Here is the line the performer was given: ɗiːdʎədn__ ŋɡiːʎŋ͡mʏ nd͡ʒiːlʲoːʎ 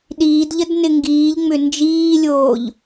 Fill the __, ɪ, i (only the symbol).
ɪ